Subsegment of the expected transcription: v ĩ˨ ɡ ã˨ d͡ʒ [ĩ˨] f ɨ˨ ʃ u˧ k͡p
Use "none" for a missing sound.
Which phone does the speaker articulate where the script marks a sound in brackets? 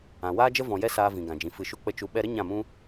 ĩ˨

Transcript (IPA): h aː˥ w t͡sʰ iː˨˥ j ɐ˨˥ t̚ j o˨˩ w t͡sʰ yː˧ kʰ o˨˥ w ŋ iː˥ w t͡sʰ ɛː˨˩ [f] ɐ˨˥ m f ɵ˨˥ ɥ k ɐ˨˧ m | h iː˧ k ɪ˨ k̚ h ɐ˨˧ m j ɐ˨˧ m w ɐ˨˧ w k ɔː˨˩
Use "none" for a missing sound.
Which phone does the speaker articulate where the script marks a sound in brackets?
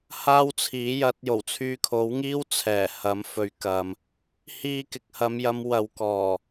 h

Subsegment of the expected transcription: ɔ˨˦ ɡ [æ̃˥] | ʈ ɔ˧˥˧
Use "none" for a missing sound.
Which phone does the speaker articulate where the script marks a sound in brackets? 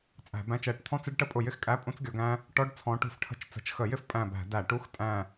æ̃˥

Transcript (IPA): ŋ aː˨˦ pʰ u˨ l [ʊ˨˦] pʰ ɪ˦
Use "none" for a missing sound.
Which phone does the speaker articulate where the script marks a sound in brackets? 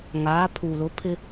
ʊ˨˦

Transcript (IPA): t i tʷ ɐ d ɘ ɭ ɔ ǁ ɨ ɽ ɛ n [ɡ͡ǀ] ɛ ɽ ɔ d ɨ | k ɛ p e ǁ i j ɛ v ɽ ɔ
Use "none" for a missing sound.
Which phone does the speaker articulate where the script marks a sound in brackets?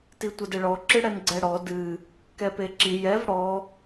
ɡ͡ǀ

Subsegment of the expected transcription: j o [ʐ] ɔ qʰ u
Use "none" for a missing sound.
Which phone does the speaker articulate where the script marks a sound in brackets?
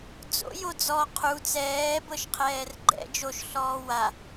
d͡z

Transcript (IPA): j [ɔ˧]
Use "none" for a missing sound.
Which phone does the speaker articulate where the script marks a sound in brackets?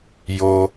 o˧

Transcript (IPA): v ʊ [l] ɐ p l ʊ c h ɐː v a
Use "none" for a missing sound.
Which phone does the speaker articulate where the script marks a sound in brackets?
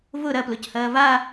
ɾ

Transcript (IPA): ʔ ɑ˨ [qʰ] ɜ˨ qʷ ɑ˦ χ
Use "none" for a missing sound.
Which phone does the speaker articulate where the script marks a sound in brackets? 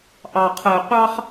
qʰ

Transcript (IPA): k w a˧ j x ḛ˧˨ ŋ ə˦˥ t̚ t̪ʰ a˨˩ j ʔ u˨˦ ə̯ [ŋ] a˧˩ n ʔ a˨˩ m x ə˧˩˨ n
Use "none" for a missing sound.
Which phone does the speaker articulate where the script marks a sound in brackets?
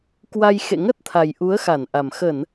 x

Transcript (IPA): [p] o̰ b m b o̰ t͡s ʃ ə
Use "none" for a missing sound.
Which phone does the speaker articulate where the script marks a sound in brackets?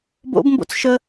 b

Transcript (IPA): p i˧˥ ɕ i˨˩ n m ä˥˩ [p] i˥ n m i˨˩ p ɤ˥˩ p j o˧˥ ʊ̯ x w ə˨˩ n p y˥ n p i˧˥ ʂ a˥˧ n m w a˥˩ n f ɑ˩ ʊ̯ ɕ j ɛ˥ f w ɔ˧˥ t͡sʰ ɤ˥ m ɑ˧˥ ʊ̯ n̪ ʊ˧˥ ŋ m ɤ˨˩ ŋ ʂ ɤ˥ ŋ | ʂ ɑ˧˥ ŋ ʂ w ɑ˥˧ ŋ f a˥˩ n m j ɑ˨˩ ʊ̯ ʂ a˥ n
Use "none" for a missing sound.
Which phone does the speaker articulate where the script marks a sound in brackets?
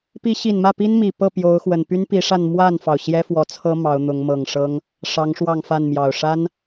p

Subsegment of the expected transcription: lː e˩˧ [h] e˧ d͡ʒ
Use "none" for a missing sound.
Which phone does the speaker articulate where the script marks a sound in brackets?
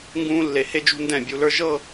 h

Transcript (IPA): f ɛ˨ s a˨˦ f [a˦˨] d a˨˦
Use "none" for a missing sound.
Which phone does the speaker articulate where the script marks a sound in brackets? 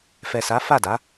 a˦˨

